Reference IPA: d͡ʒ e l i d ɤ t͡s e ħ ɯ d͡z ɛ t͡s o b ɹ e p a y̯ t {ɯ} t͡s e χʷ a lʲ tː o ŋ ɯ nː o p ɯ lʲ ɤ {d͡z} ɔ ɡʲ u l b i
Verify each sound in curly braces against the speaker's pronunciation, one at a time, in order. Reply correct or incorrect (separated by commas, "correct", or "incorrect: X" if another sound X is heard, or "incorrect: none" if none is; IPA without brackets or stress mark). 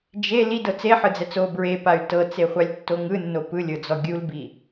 incorrect: ɤ, correct